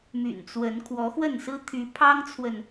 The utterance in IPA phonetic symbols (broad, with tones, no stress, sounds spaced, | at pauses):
m y̰˨˩ n t͡s w ə˨˦ n kʰ w ɔ˨˦ x w ə˥˨ n s ɹ̩˦ t̪ʰ y˨˦ pʰ ɑ˦ ŋ t͡sʰ w ə˨ n